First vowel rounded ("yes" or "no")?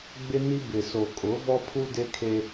no